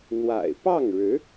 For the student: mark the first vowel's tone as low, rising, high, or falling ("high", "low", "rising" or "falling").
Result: low